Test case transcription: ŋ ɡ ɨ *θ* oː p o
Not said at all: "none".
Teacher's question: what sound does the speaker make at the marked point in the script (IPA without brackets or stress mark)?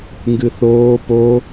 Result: θ